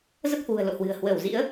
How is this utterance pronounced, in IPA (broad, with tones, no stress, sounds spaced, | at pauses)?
z ə˦˥ p̚ h w ṳ˨˩ ə̯ l o̰˧˨ h w ɨ̤˨˩ ə̯ h w əː˧˩ w z ḭ˧˥ ə̯